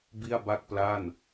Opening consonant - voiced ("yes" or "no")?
yes